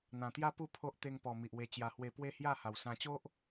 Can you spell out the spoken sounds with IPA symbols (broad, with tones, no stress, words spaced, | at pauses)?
n̪ã˨˩t̪ja˦ pu˥˧pʰo˦ʔ t̪e˧ŋpɔ˨˩ mi˨ʔwe˧t͡ɕja˧hwe˧ pwe˦hja˥˧ ha˨˩wsã˧t͡ɕo˦ʔ